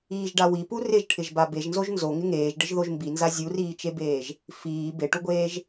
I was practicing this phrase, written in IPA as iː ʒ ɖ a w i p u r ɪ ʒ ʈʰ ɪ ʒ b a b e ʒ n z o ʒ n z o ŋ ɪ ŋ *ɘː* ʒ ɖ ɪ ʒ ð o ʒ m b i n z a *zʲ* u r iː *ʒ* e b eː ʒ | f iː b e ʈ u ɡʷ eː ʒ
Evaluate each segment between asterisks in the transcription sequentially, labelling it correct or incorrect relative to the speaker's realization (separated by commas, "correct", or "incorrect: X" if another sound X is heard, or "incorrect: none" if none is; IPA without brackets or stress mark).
incorrect: eː, correct, incorrect: t͡ʃ